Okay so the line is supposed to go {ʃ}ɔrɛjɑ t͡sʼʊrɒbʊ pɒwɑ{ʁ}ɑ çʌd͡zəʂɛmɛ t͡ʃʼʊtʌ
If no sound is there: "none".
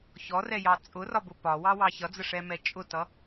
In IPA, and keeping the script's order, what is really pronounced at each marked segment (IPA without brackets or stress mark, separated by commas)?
ç, w